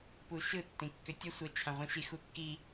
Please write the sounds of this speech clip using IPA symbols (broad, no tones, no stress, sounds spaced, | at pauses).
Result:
p u ʃ ɯ tː ĩ kː ʏ tʲ ə sʷ ə t͡ʃʰ ã ʁʷ ĩ ʃ i x u kː i